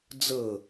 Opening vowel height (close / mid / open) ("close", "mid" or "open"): mid